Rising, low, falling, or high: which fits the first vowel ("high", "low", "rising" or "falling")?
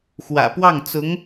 low